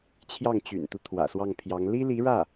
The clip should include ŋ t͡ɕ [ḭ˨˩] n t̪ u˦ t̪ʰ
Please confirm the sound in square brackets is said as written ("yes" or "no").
no